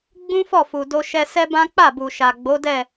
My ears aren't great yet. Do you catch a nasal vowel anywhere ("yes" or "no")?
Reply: yes